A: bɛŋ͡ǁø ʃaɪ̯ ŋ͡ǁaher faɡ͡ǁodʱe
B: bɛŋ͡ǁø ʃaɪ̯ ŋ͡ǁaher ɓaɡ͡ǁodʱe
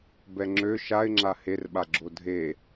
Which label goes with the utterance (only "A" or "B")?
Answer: B